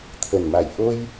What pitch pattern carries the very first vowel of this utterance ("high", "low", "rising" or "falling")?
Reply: low